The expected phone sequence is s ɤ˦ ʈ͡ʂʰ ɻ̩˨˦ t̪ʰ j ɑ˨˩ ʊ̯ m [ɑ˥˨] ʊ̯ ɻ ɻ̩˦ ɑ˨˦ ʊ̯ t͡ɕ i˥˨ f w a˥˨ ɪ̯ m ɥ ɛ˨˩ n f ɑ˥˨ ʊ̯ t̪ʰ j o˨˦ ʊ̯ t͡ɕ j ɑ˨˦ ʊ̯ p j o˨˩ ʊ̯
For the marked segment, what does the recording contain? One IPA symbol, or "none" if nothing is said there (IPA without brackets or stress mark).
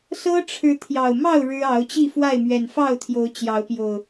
ɑ˥˨